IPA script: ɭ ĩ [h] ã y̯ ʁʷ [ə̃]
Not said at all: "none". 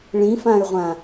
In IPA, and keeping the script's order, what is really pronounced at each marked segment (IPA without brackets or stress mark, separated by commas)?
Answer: f, ã